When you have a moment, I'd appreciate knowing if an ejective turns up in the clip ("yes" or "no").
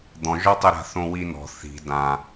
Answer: no